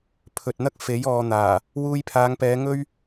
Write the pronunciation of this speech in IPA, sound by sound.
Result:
pʰɵ˨t̚n̪ɐ˥k̚fe˨˥j ɔː˨n̪aː˨˩ | wuː˧jpʰaː˨˧ŋpɛː˨˧ ŋɵ˥ɥ

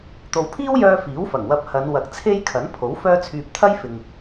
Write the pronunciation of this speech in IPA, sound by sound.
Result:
t̪o˨˧wpʰiː˥wjœː˧ fiː˨˥wfɐ˨˩ŋwɐ˧p̚ hɐ˨˧n wɐ˨k̚t͡sʰe˥j kʰɐ˨˥npʰo˨˥w fœː˧t͡sʰyː˨p̚ t̪ʰɐ˥jfɪ˨ŋ

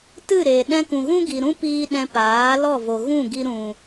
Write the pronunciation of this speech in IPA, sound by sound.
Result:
tɨ˦˨ɾe˨ ɗɛ̃˧kũ˨ɣũ˦ ɡi˨ɾũ˦piː˧ ɗɛ̃˧paː˨˦ lɔ˦˨vo˨ ɣũ˦˨ɡi˧ ɾũ˨

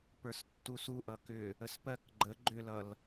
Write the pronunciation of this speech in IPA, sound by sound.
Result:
pə˞stːusu ʔʌkʏ | əspɜk ɡ͡ǃə ɡ͡ǃʏlʌl

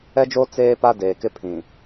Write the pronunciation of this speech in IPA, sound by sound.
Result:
ɛ˦d͡ʒoː˦ t͡seː˦pa˦ deː˨kɪ˦pʰĩ˨

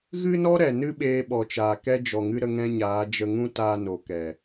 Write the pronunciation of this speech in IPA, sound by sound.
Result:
ɣɨ˦nɔ˦ɾɛ˨ nɨ˦ɓeː˧ɓɔ˨t͡ʃaː˨ kɛ˦ d͡ʒɔ˨ŋɨ˧ ɾə˦ŋɛ̃˦ɲaː˨˦ d͡ʒə˧ŋũ˦taː˧no˨ kɛ˨

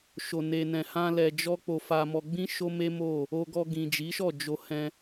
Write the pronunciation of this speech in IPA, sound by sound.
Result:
ʃo˧ne˧nɛ̃˧hã˦ lɛ˧d͡ʒɔ˦ k͡po˧fa˧mɔ˧ɡ͡bĩ˦ ʃo˦me˦ mo˦˨ | o˧ɡɔ˧ ɡĩ˨d͡ʒi˨˦ʃɔ˦˨ d͡ʒo˧hɛ̃˧

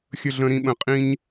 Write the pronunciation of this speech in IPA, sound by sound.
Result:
xʲə˧ɮə̃˧ ɾĩ˧ɓə̃˨˦ qʼĩ˦ɲ

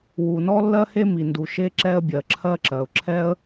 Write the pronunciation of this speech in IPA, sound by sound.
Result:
wu˩nɔ˥lːɜ˥he˥ mi˩ndu˩ʃe˥ ǁɛ˥ə̯bʲɜ˩ǁʰɜ˥ǁɜ˩ʊ̯ ǁʰɛ˥ə̯

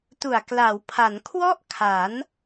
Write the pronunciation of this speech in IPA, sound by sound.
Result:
tu˨˩a̯ kla˩˦wpʰa˩˦n kʰwɔ˥˩ʔkʰa˩˦n

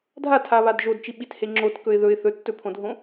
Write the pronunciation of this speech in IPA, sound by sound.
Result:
dʱatʰaβad ʒodt͡ʃiɓithe ŋ͡ǁotkɵɪ̯ ðɵɪ̯ θɵtːɵpʰõdʱõ

